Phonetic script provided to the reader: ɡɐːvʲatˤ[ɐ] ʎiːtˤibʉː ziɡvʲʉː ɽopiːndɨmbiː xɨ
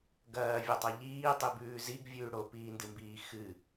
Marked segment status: correct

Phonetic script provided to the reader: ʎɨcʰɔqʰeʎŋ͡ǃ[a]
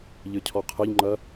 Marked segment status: incorrect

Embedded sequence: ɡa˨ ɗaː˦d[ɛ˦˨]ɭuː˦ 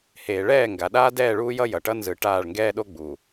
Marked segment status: incorrect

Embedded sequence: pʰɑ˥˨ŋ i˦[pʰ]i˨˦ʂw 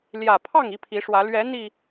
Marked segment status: correct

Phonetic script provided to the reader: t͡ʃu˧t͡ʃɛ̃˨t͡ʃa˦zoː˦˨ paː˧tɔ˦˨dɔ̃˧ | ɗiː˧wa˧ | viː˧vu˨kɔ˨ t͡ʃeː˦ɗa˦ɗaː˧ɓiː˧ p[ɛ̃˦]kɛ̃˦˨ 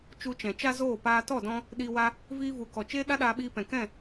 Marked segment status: incorrect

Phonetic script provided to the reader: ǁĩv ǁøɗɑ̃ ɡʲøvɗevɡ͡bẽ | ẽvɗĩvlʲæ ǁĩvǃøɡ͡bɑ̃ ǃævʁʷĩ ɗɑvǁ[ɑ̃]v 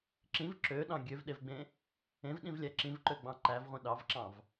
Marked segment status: correct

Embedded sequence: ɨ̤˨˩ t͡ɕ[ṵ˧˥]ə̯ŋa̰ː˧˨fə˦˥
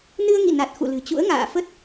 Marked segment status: correct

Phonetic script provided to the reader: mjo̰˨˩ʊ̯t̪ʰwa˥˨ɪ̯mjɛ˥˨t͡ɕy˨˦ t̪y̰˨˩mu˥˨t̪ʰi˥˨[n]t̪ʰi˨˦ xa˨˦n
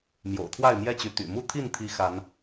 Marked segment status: correct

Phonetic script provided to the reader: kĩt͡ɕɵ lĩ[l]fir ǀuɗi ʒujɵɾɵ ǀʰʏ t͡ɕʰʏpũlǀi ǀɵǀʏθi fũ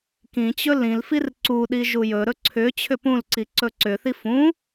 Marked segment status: correct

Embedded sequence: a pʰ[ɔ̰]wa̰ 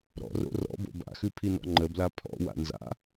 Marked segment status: correct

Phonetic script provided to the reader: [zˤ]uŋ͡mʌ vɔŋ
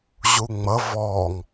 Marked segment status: incorrect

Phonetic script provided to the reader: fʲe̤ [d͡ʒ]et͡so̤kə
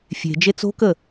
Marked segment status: correct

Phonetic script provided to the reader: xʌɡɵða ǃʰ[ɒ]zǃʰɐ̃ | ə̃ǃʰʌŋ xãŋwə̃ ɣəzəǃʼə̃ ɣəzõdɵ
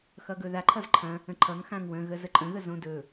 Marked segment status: incorrect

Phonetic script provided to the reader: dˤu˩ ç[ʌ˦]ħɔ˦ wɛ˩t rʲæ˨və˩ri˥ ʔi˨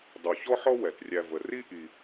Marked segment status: incorrect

